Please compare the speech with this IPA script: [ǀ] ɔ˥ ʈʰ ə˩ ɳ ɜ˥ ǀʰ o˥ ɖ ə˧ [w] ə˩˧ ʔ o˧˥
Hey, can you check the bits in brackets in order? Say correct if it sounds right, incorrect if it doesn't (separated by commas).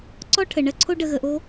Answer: correct, incorrect